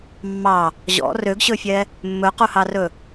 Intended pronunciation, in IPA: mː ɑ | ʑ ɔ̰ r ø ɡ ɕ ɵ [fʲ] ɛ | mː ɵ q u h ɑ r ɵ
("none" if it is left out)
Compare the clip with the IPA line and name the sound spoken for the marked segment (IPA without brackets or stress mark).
fʲ